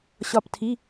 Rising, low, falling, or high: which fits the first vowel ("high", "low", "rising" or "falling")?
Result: falling